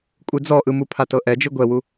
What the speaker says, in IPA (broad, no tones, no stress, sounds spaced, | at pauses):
kʷʼ ɯ d͡z ɔ ʔ ɯ m u pʰ a t ɤ ʔ ɛ d͡ʒ ɯ ɡʷ ɛ w u